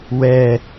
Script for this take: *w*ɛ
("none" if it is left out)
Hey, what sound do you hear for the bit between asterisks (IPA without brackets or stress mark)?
w